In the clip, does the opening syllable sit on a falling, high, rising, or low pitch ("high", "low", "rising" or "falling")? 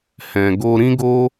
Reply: low